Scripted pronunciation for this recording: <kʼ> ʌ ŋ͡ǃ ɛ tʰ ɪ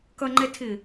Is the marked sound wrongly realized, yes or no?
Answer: yes